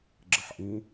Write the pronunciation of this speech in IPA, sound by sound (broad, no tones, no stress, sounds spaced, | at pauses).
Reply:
ɡ͡ǁ ə ħ ʔ ĩ